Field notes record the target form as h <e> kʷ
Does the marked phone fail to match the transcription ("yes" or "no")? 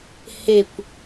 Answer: no